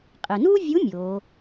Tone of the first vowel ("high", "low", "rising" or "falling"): low